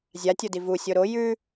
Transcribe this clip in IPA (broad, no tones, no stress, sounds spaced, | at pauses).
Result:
zʲ a tʲ o d i v u sʲ o ɾ o j ʉ